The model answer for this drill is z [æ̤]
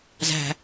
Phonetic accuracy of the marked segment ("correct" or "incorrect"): correct